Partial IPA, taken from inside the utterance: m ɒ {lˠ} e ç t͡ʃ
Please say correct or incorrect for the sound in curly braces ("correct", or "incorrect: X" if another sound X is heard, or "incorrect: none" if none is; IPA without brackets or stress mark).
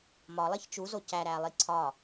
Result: correct